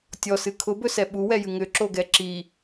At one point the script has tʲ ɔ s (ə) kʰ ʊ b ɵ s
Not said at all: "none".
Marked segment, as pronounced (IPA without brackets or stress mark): ɨ